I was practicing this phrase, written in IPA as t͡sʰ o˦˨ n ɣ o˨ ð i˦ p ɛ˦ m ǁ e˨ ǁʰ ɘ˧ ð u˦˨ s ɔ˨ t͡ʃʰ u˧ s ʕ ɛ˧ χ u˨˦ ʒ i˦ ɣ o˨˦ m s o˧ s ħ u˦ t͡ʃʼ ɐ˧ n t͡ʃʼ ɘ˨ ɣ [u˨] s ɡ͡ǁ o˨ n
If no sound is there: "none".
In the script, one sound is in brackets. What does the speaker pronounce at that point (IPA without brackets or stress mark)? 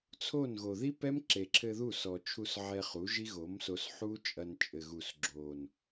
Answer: u˨